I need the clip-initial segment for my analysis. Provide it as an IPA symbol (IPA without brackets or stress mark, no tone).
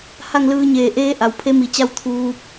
h